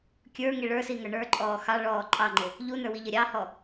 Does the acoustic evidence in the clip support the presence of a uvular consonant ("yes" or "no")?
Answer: no